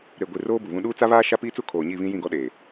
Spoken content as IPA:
ɾ e˨ ɡʷ i˨ r oː˦ b u˨ β ũ˦ ɗ uː˦ t͡s a˦ β aː˦ ʃ a˦ p iː˦ t͡s u˦ kʰ oː˨ ɲ i˦˨ β ĩ˦ j ĩ˦˨ ɡ ɔ˦ ɗ eː˨

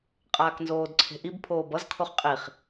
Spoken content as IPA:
qʼ aː k n z oː d ǀʰ e̤ ʔ i b pʰ oː b ʌ z kʰ o χ qʼ i χ

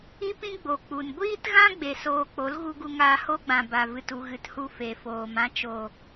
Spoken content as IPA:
i˦ p ĩ˦ ɡ͡b o˨ k͡p u˨ n ɡʷ iː˧ t ɣ ã˧ ɡ͡b e˨ s oː˧ k͡p o˨˦ l ɣ u˧ ɡ u˧ ŋ aː˧ h o˦ ɡ͡b ã˨ b a˨ v ɨ˨ t u˨ ɣ ɨ˨ t h u˧ f e˨ f oː˨ m ã˦ t͡ʃ o˨

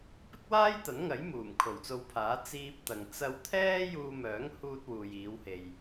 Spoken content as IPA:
p ɪ˥ k̚ w aː˥ j t̪ ɐ˨˥ n ŋ ɐ˨˥ j m uː˨˩ m kʰ o˨˩ w t͡s o˧ w pʰ aː˨˥ t͡s iː˧ p̚ t̪ ɐ˨ ŋ t͡s ɐ˧ w t̪ʰ ɛː˥ j uː˧ m œː˨˥ ŋ h uː˧ t̚ w uː˨ j iː˨˧ w h e˨ j

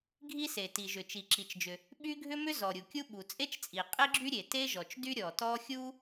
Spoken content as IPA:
ɡʱ i˥ s e˩ t i˩ ʒ ʏ˩ t͡ʃ i˩ ǁ i˩ t͡ʃ d͡ʒ ʏ˩ | ɓ y˥ ɡʱ ʏ˥ m ʏ˥ z ɔ˩ ɾʲ u˩ kʲ u˥ ɓ u˩ t͡sʼ e˥ t͡ʃ t͡sʼ i˩ qʼ e˥ ɡ͡ǁ y˥ ɾʲ e˩ t e˥ ʒ ɔ˩ t͡ʃ d y˥ ɾʲ ɔ˩ t ɔ˥ xʲ u˥

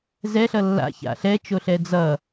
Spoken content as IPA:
z ɛ ɬ ʌ lː a̰ ç a̰ ɬ ɛ t͡ʃ o ɬ ɛ d͡z ʌ

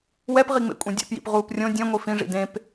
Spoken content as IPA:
w ɛ p ʁ i ŋ͡m ḛ kʷʼ ẽ dʲ ḛ p j ḭ p ʁ uː p rʲ õ dʲ ɛ̃ ŋʷ i f ĩ ʐ ḭ d ẽ p

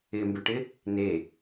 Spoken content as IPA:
ɪ m b ʏ ʈ ɪ | n e

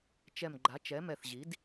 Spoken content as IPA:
t͡ʃ ɛ˧˩ m ɡ͡ǃ a˩˥ t͡ʃ ɛ˩˥ m ɛ˧˩ θ ʑ i˩˥ d

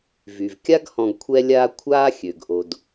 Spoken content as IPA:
v y˩ v kʲ a˦ ɡ h ɔ̃˨ ɡ kʷʰ ɛ˦ lʲ aː˦ kʷʰ aː˥ xʲ ø˩ ɡ ʔ o˩ d

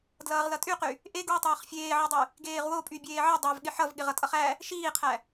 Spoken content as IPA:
d l ʌː ʁ l ʌ tʼ y q y | ʔ e ɡ w i tˤ ʌː χ fʲ eː ʕ ʌ dˤ y | ɡ eː ʁ w o pʼ y bʲ eː ʕ ʌ dˤ æ v ɠ ɪ ħ ʌ v ɠ ɪ ʁ ʌ tʼ ʌ χ æ | ʃ iː qʰ æ

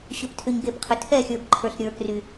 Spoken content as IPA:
ɕ ʏ˨ p tʰ ʏ˨ ɲ ɡ e˨ p qʰ ʏ˨ tʰ ɛ˦˨ xʲ ə˞˨ b ǃʰ ə˞˨ ɬ ɾʲ ə˞˨ k r y˨

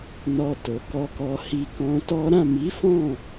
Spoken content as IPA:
n ɔ˧ t o˨ k ɔ˧ k ɔ˨ h i˨ k ɔ̃˧ t ɔ˦ ɾ ã˦˨ m i˨˦ f ɔ̃˦˨

